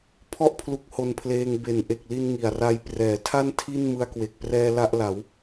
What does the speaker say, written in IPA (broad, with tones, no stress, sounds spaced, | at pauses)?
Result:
pʰ ɔ˥˩ ʔ pʰ l u˦˥ k̚ h o˧ n pʰ l eː˧ ŋ b e˩˦ n ʔ e˨˩ k̚ l i˧ n ŋ i˨˩ a̯ r a˧ j p r ɛː˩˦ tʰ a˥˩ n tʰ i˥˩ n m ɯ˧ a̯ k w e˨˩ k̚ p r ɛː˧ l a˥˩ ʔ l a˩˦ w